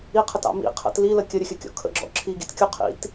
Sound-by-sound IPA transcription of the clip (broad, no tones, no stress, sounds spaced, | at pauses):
i qʰ ə t ɑ̰ m ḭ qʰ ə̰ t l i l ə kʲ ə ɾʲ ə xʲ ə kʲ ɔ̰ kʰ ə̰ ɡ͡ǁ ɔ̰ ǁʰ i ɡ ḭ t kʲ u qʰ ḭ t